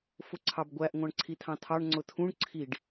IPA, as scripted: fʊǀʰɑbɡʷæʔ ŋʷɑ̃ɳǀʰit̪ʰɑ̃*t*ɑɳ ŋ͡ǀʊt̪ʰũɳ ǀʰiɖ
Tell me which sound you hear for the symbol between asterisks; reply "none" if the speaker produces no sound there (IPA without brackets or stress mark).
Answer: t̪ʰ